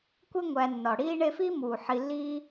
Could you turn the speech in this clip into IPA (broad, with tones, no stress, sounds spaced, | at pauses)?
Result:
kʷ e˦ ŋʷ æ˨ nː ɒ˩ ɽ iː˦ ɳ e˦ f iː˥ m uː˩ ħ i˨ lː iː˥